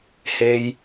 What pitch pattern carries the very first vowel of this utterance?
high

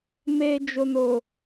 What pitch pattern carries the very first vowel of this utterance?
low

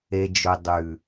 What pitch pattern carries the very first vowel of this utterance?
low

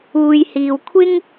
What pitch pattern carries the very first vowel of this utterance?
low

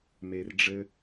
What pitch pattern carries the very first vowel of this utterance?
low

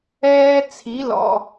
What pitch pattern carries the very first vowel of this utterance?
high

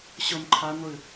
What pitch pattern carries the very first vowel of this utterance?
high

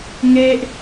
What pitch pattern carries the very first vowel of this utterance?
high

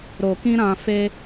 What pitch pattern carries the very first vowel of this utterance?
low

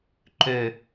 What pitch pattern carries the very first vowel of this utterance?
low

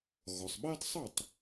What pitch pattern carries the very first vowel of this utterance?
low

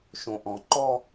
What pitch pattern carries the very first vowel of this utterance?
low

